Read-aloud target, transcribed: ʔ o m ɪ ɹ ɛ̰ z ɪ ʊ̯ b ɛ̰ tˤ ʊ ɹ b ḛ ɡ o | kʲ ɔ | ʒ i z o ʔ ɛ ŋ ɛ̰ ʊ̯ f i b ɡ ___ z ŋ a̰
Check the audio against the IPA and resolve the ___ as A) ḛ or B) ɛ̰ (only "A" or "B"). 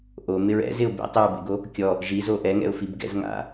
B